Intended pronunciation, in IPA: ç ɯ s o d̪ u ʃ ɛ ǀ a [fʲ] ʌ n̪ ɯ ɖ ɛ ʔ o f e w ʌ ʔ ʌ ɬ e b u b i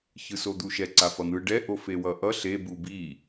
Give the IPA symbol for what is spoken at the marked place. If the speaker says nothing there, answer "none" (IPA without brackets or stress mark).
f